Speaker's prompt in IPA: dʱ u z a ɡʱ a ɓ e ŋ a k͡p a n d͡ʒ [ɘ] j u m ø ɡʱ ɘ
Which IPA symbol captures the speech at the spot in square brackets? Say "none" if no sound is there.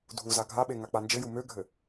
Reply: ɘ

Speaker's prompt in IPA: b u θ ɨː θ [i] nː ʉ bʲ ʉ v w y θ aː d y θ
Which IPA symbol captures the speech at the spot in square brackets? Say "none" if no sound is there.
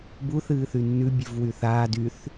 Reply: y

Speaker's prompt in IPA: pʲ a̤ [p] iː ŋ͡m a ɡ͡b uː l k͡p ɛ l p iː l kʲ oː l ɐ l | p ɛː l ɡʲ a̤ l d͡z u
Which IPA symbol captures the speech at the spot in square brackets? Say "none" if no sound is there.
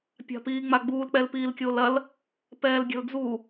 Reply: p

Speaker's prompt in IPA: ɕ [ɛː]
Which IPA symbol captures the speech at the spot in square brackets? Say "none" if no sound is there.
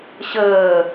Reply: əː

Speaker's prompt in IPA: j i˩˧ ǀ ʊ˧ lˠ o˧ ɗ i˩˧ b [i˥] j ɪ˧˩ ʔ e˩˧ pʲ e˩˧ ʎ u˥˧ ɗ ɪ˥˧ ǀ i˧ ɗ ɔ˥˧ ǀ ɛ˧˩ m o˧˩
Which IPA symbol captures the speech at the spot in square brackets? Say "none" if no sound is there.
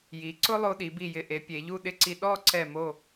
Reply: i˧˩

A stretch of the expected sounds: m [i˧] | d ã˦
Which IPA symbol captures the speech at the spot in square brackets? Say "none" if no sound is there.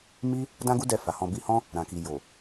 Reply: i˦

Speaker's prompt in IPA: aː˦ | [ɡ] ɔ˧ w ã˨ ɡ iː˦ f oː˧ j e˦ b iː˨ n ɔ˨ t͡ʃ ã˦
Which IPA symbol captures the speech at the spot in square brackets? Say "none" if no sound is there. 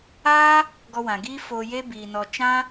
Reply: ɡ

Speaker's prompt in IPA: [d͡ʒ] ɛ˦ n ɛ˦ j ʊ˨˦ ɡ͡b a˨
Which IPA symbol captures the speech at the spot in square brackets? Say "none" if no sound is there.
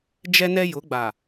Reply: d͡ʒ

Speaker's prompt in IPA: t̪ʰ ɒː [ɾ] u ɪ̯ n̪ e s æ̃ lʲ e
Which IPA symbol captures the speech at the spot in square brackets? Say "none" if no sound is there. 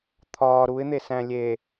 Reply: ɾ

